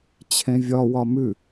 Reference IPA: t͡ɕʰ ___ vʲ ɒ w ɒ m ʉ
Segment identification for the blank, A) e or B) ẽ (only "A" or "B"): B